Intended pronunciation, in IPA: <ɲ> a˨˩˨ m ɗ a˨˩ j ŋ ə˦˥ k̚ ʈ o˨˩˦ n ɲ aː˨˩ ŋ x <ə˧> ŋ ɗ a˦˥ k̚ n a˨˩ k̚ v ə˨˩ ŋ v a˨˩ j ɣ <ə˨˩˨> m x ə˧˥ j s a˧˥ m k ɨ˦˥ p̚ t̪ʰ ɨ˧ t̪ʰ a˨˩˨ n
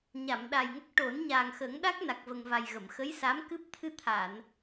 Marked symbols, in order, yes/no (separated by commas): yes, no, yes